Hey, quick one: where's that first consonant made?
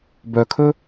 lips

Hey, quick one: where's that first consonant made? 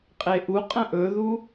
uvula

